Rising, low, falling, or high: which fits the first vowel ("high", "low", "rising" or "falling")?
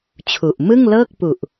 low